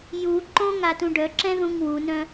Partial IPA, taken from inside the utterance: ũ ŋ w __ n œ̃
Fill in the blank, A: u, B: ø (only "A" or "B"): A